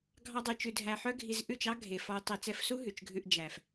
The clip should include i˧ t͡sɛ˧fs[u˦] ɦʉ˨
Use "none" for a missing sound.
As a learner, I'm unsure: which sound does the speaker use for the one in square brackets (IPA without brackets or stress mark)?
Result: u˦